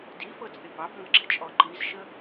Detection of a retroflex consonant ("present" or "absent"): absent